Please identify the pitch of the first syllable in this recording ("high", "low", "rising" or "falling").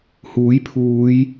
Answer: rising